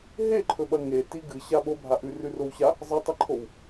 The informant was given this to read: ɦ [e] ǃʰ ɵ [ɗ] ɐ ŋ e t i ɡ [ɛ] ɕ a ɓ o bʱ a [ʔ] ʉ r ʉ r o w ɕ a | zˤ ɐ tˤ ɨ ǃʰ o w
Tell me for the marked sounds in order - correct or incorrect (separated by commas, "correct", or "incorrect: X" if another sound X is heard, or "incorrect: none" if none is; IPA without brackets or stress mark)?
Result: correct, incorrect: ɓ, incorrect: ɨ, correct